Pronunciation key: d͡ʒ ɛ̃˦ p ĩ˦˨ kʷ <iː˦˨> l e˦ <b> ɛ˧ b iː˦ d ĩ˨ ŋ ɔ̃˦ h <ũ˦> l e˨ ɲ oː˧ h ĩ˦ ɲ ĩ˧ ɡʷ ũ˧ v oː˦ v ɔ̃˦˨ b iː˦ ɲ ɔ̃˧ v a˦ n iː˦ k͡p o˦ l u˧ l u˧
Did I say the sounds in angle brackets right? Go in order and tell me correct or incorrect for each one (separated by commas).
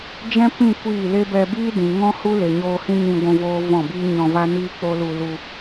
correct, correct, incorrect